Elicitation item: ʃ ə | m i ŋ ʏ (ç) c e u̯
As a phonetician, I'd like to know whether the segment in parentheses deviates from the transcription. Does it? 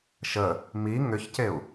no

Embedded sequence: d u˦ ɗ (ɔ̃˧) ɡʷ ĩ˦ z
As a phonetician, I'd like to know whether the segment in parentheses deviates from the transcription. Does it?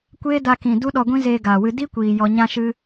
yes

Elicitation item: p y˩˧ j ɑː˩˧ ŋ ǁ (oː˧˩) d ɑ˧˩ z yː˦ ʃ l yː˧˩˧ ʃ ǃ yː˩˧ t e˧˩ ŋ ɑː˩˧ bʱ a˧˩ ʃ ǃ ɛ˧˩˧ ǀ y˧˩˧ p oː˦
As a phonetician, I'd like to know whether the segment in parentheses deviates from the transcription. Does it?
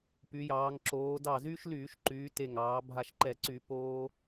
yes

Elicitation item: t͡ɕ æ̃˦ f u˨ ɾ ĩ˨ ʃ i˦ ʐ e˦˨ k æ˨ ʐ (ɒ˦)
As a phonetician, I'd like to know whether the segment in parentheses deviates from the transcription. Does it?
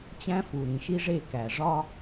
no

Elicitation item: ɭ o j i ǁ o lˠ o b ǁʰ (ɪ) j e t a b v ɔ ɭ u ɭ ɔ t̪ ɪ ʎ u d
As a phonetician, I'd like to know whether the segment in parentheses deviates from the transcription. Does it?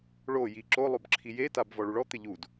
yes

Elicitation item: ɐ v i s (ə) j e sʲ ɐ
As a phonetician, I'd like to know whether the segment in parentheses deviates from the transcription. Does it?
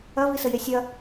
no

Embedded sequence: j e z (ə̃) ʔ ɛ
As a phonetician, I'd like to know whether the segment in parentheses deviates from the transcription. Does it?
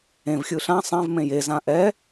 yes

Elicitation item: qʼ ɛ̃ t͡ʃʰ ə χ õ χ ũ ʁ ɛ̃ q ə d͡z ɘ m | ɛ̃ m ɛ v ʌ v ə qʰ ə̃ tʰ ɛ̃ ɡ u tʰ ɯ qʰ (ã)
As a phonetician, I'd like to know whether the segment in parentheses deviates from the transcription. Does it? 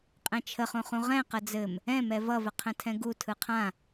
no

